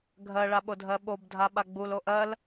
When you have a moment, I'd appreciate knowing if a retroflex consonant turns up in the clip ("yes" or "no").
yes